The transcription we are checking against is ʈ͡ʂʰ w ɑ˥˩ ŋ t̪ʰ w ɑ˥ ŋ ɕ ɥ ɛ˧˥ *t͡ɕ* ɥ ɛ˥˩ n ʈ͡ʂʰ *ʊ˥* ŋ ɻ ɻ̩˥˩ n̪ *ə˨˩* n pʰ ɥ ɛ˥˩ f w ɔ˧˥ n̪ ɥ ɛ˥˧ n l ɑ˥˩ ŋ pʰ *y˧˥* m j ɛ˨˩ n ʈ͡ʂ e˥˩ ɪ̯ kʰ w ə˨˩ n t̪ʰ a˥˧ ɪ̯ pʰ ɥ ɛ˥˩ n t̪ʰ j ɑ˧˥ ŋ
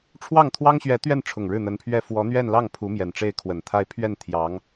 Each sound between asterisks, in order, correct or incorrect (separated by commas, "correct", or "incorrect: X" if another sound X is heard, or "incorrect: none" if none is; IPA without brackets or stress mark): incorrect: t̪, incorrect: ʊ˨˩, incorrect: ə˧˥, incorrect: u˧˥